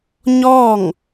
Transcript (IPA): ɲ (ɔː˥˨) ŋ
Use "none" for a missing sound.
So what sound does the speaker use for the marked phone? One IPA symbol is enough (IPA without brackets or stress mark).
ɔː˥˨